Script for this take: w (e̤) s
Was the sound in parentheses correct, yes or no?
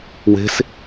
yes